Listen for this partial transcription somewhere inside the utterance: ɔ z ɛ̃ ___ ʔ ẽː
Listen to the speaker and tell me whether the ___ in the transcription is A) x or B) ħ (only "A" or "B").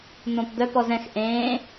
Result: A